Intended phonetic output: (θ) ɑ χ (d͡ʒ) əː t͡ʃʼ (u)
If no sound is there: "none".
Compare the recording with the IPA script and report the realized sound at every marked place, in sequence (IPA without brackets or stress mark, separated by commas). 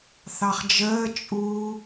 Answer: θ, d͡ʒ, u